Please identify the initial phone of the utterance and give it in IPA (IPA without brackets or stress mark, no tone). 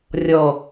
rʲ